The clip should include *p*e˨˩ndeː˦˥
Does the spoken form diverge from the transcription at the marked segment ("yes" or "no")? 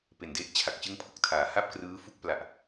no